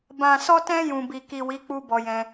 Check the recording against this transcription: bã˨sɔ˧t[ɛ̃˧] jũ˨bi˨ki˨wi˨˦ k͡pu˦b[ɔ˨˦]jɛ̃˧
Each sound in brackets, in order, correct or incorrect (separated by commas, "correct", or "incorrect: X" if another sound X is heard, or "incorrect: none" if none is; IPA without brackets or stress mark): correct, incorrect: ɔ˧